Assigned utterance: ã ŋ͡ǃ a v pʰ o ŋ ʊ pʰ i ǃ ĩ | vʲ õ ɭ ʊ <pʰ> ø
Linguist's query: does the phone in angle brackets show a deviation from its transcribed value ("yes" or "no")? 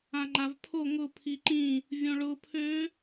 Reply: no